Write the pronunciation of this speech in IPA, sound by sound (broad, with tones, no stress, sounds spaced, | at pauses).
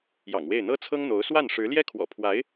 j ɑ̰˨˩ ŋ w e˥˩ ɪ̯ n̪ ɤ˥ t͡sʰ ɤ˥ ŋ n̪ o˧˥ ʊ̯ s w a˥˩ n ʂ ɻ̩˧˥ l j ɛ˥ kʰ w ɔ̰˨˩ pʰ w a˧˥ ɪ̯